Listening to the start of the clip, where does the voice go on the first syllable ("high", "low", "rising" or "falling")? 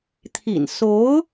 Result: low